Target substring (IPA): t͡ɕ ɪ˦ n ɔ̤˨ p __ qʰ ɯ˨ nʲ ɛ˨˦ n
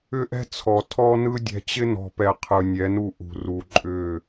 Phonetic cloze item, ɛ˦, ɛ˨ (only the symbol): ɛ˨